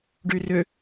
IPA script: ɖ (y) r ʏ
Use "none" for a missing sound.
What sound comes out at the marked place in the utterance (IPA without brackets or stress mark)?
y